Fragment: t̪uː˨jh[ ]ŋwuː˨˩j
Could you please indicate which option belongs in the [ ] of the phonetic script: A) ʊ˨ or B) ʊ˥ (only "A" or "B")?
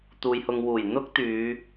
A